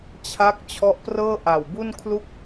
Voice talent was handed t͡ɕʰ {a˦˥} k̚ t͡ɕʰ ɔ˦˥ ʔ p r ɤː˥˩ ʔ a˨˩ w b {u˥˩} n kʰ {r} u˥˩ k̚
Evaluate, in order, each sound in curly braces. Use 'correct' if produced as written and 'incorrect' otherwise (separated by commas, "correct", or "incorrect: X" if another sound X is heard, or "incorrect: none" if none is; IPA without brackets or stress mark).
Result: correct, correct, incorrect: l